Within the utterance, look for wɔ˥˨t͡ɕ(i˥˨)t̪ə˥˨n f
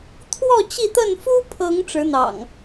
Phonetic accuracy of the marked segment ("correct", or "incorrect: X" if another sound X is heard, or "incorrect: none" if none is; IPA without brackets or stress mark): correct